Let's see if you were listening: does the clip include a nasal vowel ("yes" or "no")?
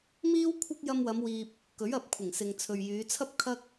no